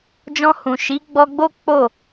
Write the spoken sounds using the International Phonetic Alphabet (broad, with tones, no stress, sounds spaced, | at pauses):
d͡ʒ ɔ̃˧ h ũ˨ ʃ i˨˦ ɡ͡b ɔ˧ ɡ͡b o˦ k͡p o˦˨